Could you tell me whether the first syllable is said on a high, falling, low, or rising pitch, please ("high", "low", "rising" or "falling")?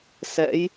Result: rising